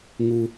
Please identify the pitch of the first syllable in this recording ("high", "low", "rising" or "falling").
low